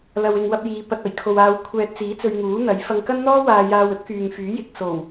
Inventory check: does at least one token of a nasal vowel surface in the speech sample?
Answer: no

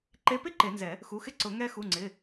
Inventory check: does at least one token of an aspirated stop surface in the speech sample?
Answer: no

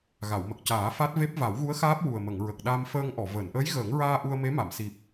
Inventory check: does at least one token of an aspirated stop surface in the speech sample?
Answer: no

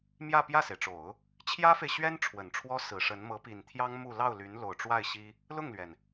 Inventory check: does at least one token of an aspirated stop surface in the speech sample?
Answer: yes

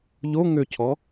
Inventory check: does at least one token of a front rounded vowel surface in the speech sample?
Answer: yes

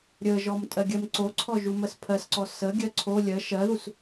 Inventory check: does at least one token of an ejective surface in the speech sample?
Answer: yes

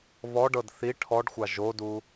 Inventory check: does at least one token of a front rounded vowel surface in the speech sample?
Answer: no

